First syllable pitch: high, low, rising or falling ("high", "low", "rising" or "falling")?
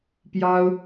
high